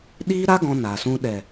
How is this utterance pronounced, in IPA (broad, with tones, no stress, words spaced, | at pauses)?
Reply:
ɗiː˦ɾa˦ ɡɔ̃˧naː˨sũ˧ ɗɛ˨